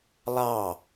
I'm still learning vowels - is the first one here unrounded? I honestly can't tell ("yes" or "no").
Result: yes